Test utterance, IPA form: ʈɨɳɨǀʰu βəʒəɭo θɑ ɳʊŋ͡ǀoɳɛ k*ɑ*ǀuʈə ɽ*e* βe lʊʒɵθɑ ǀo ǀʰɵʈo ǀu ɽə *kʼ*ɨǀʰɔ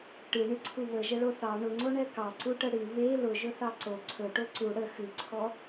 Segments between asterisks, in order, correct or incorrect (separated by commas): correct, incorrect, incorrect